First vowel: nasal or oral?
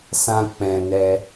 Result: nasal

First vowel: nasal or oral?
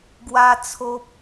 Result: oral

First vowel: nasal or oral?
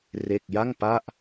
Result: oral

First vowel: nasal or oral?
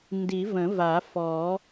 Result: oral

